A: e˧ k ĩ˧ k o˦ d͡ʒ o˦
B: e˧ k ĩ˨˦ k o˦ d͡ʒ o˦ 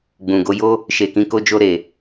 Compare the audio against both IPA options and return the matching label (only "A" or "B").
A